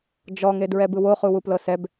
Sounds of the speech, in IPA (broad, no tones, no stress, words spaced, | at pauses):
d͡ʒɔŋedɹɛ bɯwoχuwu plɤsɛb